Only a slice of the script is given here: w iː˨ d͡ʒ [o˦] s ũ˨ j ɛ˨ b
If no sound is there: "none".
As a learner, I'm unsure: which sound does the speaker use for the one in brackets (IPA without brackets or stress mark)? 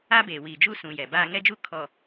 u˦